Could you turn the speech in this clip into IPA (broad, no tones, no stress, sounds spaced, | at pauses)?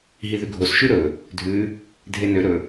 ɦ i ð ʉ ɡʱ o s ʃ ʉ ɾ ɵ | dʱ ʉ | dʱ e n ø ɾ ɵ